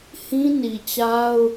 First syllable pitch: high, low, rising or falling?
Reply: high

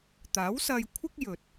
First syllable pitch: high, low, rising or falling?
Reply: rising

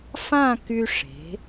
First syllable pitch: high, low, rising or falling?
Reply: falling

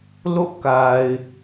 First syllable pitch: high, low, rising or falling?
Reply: falling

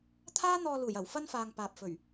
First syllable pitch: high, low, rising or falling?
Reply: high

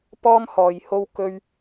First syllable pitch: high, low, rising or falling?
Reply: high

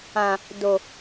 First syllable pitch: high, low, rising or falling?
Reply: low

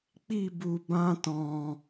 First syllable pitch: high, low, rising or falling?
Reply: falling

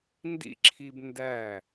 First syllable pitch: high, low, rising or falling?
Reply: high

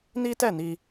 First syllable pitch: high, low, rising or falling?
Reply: high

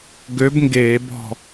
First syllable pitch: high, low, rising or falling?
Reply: rising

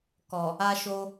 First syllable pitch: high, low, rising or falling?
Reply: low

